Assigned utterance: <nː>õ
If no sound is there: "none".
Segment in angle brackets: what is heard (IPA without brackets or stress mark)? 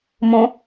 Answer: m